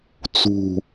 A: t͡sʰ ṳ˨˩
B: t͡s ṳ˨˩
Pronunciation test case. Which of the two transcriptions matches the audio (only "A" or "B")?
B